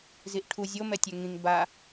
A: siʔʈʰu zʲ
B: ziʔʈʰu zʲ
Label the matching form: B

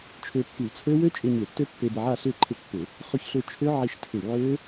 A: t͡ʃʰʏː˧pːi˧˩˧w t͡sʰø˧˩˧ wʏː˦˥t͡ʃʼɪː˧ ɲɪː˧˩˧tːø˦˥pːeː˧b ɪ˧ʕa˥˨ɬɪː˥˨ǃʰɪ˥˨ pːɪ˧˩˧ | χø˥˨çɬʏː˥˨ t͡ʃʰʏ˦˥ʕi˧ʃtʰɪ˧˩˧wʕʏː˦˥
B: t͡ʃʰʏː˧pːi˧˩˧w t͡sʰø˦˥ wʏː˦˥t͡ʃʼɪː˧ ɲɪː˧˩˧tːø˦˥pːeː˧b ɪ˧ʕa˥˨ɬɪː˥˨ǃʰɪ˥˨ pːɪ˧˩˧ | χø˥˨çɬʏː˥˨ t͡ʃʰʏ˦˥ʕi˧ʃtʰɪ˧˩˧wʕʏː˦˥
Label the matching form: B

